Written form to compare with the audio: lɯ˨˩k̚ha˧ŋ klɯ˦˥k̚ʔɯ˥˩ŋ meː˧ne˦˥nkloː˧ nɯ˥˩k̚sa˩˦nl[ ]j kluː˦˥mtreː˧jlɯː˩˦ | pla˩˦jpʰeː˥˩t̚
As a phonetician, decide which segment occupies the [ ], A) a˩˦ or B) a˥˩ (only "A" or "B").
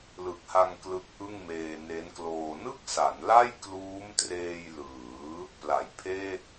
B